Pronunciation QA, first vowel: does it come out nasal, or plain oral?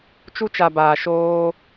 oral